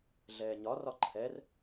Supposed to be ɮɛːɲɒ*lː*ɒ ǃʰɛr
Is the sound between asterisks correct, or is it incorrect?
incorrect